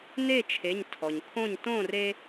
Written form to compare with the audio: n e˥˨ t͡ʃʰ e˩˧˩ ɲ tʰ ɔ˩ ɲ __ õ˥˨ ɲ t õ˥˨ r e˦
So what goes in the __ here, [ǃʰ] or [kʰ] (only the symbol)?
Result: kʰ